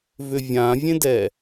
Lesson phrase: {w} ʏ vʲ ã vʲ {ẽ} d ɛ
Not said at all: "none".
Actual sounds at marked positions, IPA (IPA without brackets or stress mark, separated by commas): v, ẽ